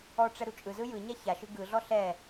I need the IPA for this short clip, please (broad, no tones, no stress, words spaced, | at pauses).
ɔʈ͡ʂɛ ɾut͡ʃʼɯzɯ jɯɲa çaʃɯ ɡɯɮɔ ɬɛ